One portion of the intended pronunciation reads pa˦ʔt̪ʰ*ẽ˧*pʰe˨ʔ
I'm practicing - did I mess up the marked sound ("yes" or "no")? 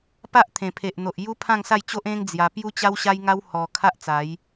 yes